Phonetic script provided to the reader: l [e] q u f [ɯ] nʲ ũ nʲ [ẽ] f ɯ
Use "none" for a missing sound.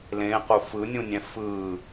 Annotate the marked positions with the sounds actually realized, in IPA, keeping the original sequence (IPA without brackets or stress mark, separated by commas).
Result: ẽ, ɯ, ɛ̃